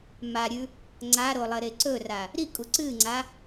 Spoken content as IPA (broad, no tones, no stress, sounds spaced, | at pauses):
m a ɾʲ ʉ | ŋ͡ǀ a ɾ o lˠ ɐ ɾ e ǀ ɵ r a | ɾ i kʼ u ǀ ɨ ŋ͡ǀ a